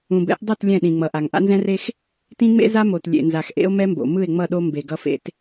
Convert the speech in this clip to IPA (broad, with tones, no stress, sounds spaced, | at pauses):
ũ˨ b ɛ̰˦ ʔ dˤ ʌ˦˨ t lʲ ɛ̃˦˨ ɗ ĩ˨ ŋ͡m ʌ˨ ʔ a˨ ŋ ʔ a̰˦ n z ɛ̃˦ r e˦ x | t ĩ˦ ŋ͡m ḛ˦ z a˦ m o˨ t lʲ ḛ˨ n z a˨ x ʔ ḛ˦ o̯ m ɛ˦ m b o̰˨ m ɯ˦˨ e̯ ŋ͡m ʌ˦˨ ɗ o˦ m b e˨ ɡ ʌ˦ f ḛ˦ t